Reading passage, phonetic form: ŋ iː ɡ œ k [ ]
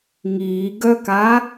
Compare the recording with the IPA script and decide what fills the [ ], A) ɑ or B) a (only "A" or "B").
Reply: B